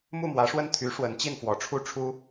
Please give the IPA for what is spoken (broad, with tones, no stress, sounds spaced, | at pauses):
m u˥˩ m w ä˧˥ ʂ w ə˥˩ n t̪ʰ y˧˥ ʂ w ə˧˥ n t͡ɕ i˥˩ n f w ɔ˧˥ ʈ͡ʂʰ u˥ ʈ͡ʂʰ u˥